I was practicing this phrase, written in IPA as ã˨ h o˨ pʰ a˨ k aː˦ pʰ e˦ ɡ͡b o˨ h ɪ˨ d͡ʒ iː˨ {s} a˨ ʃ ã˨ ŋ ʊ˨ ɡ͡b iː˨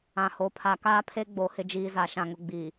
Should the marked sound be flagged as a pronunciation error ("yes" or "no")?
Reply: yes